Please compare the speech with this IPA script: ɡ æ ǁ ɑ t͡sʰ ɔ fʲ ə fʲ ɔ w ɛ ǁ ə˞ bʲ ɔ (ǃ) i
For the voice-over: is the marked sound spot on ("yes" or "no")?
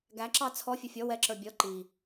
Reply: yes